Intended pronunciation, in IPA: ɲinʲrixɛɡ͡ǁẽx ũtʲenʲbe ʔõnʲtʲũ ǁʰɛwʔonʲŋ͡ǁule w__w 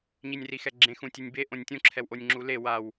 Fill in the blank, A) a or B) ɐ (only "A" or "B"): A